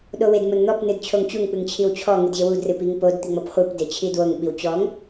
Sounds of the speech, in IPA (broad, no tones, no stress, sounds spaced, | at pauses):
ɗ o w e d m o n n̪ ɔ p n ɨ d t͡ɕʰ o ŋ t͡ɕ u ŋ k͡p ɨ ŋ t͡ɕʰ i w t͡ɕʰ ɔ ŋ ɨ d ʑ e w u d r ɨ p i ŋ p o d t̪ i ŋ͡m ɔ p χʷ ɨ p d e t͡ɕʰ i d w o ŋ ɓ i w t͡ɕ ɔ ŋ